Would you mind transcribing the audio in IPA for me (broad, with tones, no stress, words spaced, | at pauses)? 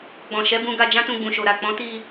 ɡ͡bɔ̃˨ʃɛ˨˦bũ˧ɡa˧ d͡ʒã˦tũ˧ɡ͡bũ˨ʃo˨ ɾa˨k͡pɔ̃˨˦ti˧